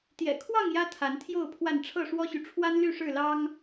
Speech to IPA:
t̪ j ɛ̰˨˩ kʰ w ɑ˥˨ ŋ j ä˦ t̪ʰ a˨˦ n t̪ʰ j o˥˨ ʊ̯ pʰ w a˥˨ n ʈ͡ʂʰ ɤ˥˨ ʂ w ɔ˦ ɕ y˨ ʈ͡ʂʰ w a˦ n l y˥˨ ʂ ɻ̩˥˨ l ɑ˦ ŋ

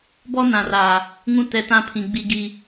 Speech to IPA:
b ɔ˦ n ã˨ r a˨ | ŋ ũ˦ t ɛ˨ t ã˦ pʰ ĩ˨ ɡ͡b i˦ ɡ i˦

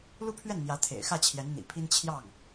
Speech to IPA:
l u˥˧ pʰ ɥ ɛ˥˩ n n̪ j ä˧˥ t̪ʰ ḛ˨˩ ɪ̯ x ä˥˩ t͡ɕʰ j ɛ˧˥ n n̪ ḭ˨˩ pʰ i˥ n t͡ɕʰ j ɑ˥˩ ŋ

